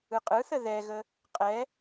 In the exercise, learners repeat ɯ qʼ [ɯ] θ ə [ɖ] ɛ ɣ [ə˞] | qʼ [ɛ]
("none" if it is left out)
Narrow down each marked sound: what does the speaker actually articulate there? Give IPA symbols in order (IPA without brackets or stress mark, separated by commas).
ɯ, ð, ə, ɛ